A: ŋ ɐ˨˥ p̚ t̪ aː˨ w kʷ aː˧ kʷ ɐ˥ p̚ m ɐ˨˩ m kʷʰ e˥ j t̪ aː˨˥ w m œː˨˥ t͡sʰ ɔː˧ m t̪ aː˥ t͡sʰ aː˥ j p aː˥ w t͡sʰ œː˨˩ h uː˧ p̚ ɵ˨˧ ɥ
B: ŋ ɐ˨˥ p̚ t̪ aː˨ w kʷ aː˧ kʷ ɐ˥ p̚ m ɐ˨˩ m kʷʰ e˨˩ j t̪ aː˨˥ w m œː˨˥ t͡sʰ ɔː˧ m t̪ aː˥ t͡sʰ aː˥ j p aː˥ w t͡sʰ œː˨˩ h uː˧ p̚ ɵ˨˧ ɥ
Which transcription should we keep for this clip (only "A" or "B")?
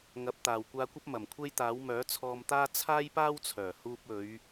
A